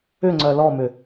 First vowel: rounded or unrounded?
rounded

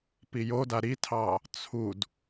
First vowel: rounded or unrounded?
unrounded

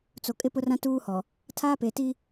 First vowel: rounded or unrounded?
rounded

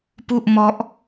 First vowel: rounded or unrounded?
rounded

